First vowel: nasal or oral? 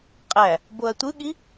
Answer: oral